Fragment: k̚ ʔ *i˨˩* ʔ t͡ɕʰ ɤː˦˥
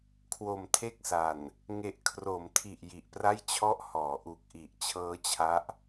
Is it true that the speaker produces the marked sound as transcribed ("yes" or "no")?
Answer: yes